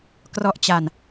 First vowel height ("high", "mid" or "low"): mid